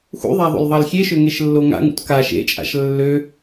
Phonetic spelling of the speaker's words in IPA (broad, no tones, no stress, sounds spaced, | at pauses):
x ṵ ðˤ a ðˤ o̰ l ðˤ ɑ l xʲ e ʃ ø ŋ e ʃ lː o ŋ a̰ ŋ ṵ t k a ʃ ḛ t͡ʃʼ a̰ ʃ lː ø